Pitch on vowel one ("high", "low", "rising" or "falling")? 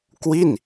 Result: falling